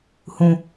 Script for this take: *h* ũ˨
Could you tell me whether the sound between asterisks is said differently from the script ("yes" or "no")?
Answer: no